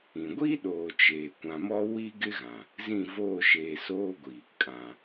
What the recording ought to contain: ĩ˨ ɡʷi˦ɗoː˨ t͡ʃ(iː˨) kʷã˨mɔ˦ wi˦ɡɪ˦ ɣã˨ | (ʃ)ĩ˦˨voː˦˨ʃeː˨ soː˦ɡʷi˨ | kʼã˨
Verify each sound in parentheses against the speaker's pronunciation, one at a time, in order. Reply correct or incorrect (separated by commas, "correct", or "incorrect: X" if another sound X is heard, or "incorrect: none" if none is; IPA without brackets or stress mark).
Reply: incorrect: eː˨, incorrect: z